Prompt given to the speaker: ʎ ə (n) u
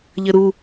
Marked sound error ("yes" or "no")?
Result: yes